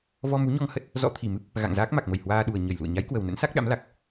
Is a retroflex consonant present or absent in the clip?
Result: absent